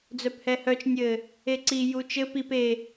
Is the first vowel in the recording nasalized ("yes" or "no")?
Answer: no